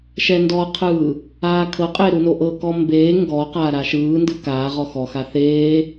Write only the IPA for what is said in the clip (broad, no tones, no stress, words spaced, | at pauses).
ʃɛndɔqʰɯː | aːkʰɤqʼe ɾunoʔɤkɔ mbeː ŋɡɔqaː ɾaʃɯːndɯ kaːʁɔ xɔxa θeː